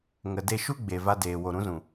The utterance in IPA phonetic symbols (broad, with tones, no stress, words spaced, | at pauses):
ŋə˨de˧ʃu˦ɡ͡be˨ va˧deː˨wo˨ ɾũ˨˦zũ˨